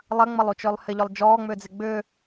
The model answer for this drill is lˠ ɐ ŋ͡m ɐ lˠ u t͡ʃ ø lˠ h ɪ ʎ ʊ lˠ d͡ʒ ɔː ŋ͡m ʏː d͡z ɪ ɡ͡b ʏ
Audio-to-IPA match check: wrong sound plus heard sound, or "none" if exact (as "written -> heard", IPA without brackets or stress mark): none